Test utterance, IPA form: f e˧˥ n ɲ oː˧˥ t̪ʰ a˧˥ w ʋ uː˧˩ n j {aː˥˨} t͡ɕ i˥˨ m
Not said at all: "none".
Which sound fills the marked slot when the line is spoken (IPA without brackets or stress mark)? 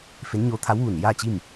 aː˥˨